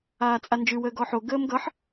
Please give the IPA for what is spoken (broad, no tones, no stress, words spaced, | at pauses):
aːt͡sʼand͡ʒʉ wəːɡɔħo ɡəːmɡʌħ